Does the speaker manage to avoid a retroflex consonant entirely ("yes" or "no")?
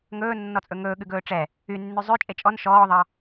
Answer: no